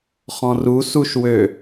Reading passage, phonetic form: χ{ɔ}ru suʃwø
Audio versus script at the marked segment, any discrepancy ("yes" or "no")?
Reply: yes